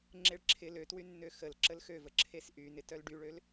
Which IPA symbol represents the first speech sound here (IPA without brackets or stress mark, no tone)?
ŋ͡ǁ